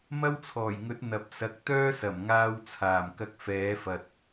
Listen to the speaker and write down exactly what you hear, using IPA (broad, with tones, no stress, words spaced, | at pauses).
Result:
mɐ˥wt͡sʰɔː˨˩jŋɵ˨˥t̚ n̪ɐ˨p̚sɐ˨˥k̚ t̪œː˥sɐ˨˩mŋaː˧w t͡sʰaː˨˩mkɐ˧k̚ fɛː˨˥fɐ˨t̚